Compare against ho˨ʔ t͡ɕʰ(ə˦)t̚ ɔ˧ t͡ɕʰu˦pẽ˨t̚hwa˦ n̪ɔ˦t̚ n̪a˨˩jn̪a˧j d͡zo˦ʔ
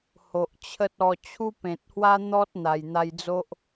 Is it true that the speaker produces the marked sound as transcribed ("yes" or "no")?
yes